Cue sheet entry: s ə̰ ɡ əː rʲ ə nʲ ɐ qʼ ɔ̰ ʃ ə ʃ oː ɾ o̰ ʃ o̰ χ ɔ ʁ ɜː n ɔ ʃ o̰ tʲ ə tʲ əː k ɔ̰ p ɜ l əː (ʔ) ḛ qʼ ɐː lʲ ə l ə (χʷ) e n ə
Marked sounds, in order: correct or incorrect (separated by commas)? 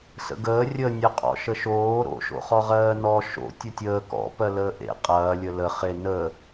correct, incorrect